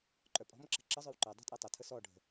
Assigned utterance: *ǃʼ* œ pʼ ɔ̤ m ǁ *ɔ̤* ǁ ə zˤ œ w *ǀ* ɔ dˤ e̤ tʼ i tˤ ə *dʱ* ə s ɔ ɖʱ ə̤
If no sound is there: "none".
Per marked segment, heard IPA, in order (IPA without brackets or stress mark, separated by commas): ǃʼ, ə̤, ǃ, tʰ